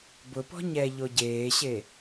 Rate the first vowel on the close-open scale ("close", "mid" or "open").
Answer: close